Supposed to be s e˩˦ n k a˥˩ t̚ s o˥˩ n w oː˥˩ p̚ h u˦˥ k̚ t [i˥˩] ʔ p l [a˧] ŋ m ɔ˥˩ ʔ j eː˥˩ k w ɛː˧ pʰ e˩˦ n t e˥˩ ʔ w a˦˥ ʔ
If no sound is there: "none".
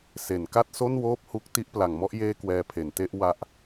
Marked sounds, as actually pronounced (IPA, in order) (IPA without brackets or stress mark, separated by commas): i˥˩, a˩˦